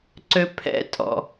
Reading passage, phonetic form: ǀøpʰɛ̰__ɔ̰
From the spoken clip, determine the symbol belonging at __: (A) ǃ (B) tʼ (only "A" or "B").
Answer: B